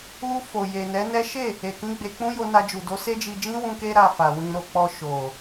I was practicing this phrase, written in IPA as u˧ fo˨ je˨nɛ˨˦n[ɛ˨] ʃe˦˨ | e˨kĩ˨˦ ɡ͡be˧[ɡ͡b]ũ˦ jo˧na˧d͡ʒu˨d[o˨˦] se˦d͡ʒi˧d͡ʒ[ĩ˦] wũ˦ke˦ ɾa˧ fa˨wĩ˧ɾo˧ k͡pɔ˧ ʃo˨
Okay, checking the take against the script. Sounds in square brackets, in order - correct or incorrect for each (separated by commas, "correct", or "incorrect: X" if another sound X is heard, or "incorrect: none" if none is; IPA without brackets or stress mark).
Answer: incorrect: ɛ˦, incorrect: k͡p, correct, correct